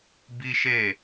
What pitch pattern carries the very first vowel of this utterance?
high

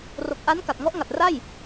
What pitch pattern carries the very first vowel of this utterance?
low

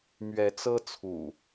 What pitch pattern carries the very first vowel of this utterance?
rising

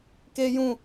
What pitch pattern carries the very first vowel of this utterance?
high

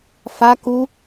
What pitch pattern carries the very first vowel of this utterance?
high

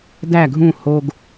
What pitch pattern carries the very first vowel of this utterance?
falling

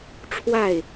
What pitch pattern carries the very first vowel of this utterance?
falling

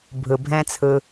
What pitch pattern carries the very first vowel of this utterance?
low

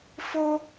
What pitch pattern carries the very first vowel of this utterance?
high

